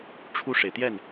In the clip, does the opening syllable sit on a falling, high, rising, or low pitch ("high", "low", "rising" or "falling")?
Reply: falling